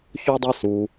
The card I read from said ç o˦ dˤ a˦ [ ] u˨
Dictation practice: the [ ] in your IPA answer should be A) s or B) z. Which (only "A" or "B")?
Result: A